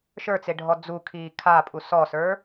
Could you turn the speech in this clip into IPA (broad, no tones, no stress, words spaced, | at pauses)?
ʃə˞t͡seɖʱɔ d͡zukʰiː kʰapʼu sɔsə˞